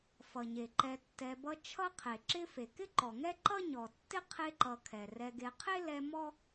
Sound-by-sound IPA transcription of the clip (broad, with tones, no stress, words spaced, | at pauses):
fʌ˩ɲe˩ǃɛ˨ tːɛ˨bʌ˦ t͡ʃʰʌ˥qʰe˩ ǁɪ˥ fe˩kɪ˥ǃɔ˩ŋɛ˥ ǃʌ˥ɲɔ˩tːɪ˥ qʰe˦ǃʌ˨kʰɛ˩ rɛ˨ɡe˨qʰe˥ lɛ˦mɔ˥